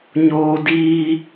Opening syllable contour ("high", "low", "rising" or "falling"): high